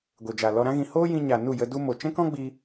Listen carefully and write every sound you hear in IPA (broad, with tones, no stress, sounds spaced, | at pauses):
ɡʷ e˨ d͡ʒ a˨ l ɔ˧ ɾ ã˦ ɣ ĩ˧ h oː˦ j ĩ˧ ɲ a˨ n u˦˨ j ə˧ d u˧ m o˨ t͡ʃ ɛ̃˦ k ɔ̃˦ ɡ͡b i˧